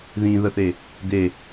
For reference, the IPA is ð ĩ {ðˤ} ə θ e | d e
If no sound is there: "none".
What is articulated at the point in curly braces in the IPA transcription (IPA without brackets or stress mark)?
ð